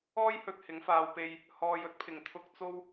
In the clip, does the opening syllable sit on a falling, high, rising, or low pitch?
high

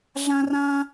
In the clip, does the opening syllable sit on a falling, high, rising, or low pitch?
high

